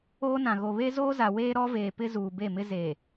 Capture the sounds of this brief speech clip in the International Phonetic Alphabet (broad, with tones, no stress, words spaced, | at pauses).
oː˦nã˨ɣo˨ βe˦zoː˦za˨ weː˦ɾɔ˦veː˨pɪ˦ zuː˨be˦˨mɪ˦ ze˨